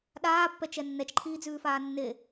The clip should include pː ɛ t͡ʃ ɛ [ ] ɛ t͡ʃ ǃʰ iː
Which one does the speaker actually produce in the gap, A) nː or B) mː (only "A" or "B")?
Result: A